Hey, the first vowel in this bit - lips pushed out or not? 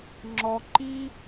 yes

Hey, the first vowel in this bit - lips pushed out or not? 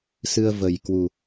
no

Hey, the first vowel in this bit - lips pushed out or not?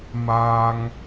no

